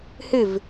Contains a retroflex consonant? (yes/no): no